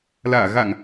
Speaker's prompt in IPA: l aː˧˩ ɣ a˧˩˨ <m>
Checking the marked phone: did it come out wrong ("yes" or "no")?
yes